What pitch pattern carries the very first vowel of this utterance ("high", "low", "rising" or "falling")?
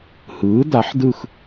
rising